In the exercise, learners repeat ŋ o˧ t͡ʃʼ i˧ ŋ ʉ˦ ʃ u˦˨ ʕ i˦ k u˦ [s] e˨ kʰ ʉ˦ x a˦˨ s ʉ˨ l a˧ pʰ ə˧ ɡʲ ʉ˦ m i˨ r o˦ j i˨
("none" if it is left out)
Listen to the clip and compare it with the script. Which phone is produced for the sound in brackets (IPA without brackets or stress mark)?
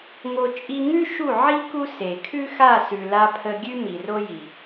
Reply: s